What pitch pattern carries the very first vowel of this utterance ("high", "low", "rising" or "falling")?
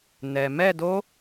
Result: low